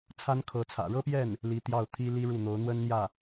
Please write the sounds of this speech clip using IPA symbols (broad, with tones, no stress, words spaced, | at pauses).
t͡sʰa˥nkʰɤ˧˥t͡sʰä̰˨˩ ɻɤ˥pjɛ˥˩n | li˧˥t̪jɑ˥˩ʊ̯t̪ʰi˥ li˥ɻu˥˩n̪o˧˥ʊ̯ n̪wə˥nn̪jä˥˩